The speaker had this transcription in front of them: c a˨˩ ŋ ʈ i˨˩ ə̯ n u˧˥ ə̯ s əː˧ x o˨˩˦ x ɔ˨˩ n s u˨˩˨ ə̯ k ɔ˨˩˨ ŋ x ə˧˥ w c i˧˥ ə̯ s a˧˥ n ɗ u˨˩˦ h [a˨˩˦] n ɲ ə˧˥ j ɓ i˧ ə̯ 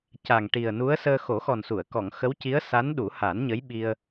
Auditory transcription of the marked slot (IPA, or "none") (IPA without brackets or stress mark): a˨˩˦